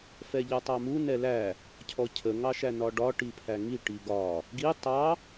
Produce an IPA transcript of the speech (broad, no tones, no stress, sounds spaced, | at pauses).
f ɛ ʎ ʌ tˤ ɑ m u n ɛ l æ | cʰ ɔ cʰ ə ŋ ɑ ʃ æ n ɒ ɖ ɒ ʈ i pʰ æ ŋ i ʈ i ɡ ɒ | ɡ i tˤ ɑ